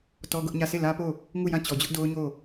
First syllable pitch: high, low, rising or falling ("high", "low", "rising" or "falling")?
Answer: high